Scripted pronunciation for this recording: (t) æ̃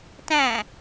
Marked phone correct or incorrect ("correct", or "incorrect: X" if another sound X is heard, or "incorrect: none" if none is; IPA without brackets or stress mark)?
correct